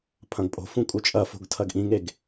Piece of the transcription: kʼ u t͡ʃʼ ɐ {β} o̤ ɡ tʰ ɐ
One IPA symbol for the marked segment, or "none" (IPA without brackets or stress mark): f